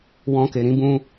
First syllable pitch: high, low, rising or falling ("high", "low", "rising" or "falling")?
high